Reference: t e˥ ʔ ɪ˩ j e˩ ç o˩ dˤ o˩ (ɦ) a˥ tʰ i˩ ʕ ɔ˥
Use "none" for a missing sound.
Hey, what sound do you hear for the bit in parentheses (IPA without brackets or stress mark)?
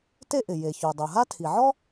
ɦ